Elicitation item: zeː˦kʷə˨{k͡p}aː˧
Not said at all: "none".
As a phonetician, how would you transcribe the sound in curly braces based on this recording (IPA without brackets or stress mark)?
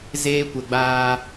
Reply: ɡ͡b